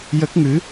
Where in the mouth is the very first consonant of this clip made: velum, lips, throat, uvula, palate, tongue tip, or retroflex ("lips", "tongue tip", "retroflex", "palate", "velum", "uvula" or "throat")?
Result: palate